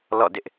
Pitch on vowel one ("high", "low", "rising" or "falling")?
falling